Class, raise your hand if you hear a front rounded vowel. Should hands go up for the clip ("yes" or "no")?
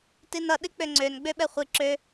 yes